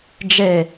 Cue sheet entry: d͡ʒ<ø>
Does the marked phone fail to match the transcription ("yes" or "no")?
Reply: yes